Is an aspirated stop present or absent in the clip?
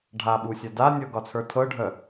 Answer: present